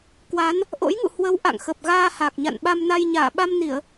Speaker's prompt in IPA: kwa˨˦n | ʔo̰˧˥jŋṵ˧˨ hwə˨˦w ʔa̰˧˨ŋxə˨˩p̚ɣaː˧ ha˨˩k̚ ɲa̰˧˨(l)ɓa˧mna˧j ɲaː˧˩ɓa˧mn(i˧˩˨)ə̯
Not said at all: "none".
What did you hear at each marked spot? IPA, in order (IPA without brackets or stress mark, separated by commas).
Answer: n, i˧˩˨